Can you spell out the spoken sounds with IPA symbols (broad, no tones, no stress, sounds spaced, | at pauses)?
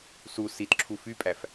s u s i t ǁʰ u f y pʼ æ f